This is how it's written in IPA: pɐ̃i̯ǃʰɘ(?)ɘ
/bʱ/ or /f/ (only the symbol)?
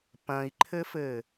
f